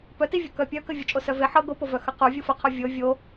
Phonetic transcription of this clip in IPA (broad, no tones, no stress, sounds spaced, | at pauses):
p œ t i vʲ o k œ pʲ œ k ə vʲ ɤ t͡ʃʼ o s œ v e ħ ɤ ɡ o p o v œ x ə q u vʲ u f ə qʰ o vʲ ɤ vʲ o